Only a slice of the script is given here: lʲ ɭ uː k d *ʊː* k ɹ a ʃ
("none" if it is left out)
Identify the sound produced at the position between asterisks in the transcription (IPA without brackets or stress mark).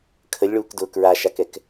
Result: ʊː